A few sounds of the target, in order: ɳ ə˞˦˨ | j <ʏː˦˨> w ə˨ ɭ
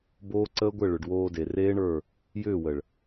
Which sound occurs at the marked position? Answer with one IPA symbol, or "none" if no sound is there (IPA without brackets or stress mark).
ʏː˦˨